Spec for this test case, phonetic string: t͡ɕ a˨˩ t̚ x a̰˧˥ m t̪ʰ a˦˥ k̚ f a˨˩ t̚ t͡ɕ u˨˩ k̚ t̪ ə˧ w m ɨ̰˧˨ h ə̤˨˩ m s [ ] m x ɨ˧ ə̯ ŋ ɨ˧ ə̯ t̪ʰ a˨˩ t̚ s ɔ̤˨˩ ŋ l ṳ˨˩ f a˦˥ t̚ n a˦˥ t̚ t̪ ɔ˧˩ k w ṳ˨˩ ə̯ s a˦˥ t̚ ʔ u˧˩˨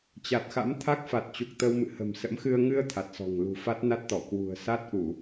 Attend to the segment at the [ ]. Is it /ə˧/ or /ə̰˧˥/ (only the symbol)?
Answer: ə̰˧˥